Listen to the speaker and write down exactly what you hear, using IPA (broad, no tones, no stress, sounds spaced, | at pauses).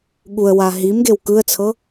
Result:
ɠ u ə̯ w a ɦ i m ɡ e w k ɯ ə̯ t͡sʰ ɤ